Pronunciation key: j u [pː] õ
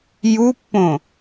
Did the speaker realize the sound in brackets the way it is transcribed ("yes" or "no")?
yes